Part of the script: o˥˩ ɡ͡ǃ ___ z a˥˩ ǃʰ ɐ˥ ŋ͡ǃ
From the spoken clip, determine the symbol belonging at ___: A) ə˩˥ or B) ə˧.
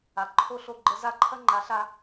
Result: B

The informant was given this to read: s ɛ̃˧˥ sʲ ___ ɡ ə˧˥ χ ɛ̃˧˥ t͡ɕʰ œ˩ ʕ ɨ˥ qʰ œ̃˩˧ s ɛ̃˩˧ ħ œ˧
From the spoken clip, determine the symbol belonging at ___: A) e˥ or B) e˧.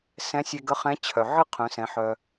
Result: B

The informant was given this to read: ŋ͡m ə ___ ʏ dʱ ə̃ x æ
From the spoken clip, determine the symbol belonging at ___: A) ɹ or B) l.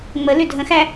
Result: B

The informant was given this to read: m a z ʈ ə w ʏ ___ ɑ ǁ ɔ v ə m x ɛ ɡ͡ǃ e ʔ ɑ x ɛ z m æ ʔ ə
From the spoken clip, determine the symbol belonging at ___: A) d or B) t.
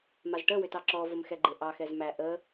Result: B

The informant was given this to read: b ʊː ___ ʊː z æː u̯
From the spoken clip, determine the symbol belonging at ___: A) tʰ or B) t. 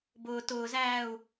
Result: B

